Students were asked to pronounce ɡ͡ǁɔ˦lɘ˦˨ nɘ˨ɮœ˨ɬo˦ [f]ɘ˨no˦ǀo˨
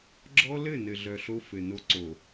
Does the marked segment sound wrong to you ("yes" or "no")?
no